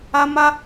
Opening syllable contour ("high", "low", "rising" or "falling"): high